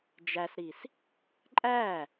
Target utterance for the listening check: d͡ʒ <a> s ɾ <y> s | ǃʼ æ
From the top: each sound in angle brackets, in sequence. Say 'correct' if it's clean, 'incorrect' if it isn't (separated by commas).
incorrect, incorrect